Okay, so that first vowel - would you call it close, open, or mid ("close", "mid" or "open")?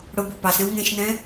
close